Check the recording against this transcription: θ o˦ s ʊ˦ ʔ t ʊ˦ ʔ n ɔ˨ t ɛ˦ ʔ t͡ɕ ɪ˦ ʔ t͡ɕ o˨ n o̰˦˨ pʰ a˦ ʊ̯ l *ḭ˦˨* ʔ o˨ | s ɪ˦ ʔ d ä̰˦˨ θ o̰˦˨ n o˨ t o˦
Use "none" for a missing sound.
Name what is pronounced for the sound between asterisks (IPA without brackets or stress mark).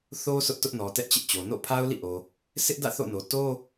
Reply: ḭ˦˨